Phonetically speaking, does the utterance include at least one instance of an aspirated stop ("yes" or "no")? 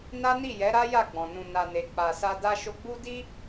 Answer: no